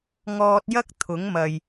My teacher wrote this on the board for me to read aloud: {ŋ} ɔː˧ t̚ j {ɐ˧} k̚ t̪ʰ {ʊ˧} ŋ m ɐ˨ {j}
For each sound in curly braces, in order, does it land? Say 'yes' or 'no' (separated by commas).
yes, no, no, yes